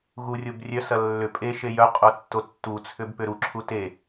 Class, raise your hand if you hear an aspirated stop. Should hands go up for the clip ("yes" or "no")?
yes